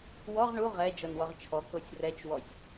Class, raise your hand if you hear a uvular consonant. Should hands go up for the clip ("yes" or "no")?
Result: yes